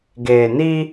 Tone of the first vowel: low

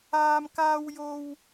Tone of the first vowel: high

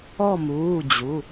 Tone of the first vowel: falling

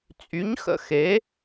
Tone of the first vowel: rising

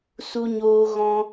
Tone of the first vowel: high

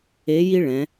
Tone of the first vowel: rising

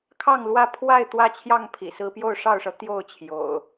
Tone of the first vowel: falling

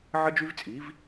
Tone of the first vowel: high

